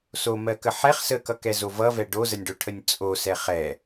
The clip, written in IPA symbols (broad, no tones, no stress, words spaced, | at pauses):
somɜkə ħɛχ səkʌkɛzo vʌvɛ ɖozənʲɖoʈʰənʲ t͡sʼosɛ χɛ